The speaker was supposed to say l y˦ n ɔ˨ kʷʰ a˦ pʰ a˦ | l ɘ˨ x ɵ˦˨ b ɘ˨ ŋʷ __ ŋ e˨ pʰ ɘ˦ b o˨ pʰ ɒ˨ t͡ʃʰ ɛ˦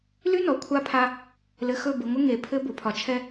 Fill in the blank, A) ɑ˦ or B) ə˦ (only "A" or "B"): B